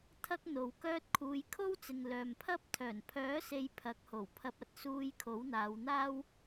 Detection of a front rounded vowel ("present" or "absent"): present